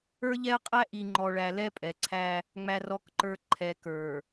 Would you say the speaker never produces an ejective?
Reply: no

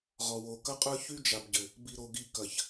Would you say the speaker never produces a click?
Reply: yes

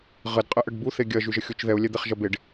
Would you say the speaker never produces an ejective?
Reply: no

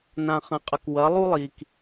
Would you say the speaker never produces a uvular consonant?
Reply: no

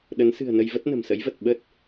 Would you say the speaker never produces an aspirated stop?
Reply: yes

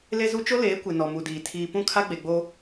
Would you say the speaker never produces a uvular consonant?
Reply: yes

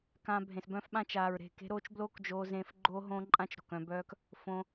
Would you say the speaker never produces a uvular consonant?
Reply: yes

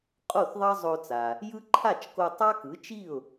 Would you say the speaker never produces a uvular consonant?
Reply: no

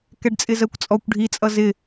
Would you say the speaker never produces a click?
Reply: yes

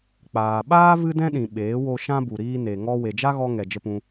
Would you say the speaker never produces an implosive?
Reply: no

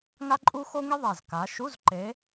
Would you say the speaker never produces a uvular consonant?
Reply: yes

